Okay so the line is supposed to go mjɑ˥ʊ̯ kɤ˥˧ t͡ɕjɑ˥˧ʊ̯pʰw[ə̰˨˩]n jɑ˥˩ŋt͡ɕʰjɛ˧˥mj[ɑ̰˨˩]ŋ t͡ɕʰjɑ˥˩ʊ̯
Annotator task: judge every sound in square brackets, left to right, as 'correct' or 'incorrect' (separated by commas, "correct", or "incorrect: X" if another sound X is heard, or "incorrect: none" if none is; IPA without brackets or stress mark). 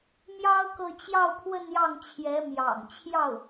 incorrect: ə˥˧, correct